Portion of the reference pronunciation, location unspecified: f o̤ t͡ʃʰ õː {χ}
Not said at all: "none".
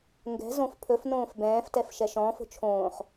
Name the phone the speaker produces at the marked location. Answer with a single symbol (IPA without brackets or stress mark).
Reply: χ